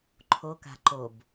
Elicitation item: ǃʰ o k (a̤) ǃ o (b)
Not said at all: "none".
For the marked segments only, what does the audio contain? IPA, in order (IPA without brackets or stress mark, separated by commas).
a̤, b